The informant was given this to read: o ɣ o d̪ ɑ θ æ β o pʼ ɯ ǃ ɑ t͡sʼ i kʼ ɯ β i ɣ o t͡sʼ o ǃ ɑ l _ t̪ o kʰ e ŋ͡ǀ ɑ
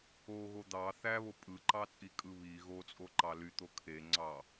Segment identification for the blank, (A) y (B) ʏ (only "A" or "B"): A